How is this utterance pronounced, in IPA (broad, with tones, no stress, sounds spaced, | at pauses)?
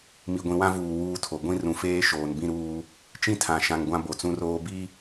m i˨ ɡʷ ĩ˨ w ã˦ v uː˨ w uː˦ tʰ o˨ ɡʷ ĩ˦ r ũ˨ f eː˦ ʃ oː˨ n b ĩ˦ ɾ uː˦ | t͡ʃ ĩ˦ tʰ ã˨ ʃ ã˨ ŋ ɡʷ ã˦ b o˨ t͡s ũ˦ r oː˦ b i˦